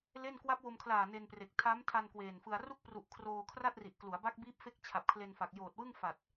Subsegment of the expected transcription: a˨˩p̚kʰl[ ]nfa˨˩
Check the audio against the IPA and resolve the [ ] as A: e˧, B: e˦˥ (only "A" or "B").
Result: A